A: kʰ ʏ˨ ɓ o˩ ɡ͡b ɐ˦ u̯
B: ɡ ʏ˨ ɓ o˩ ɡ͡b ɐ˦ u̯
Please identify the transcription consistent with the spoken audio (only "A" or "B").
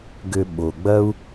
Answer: B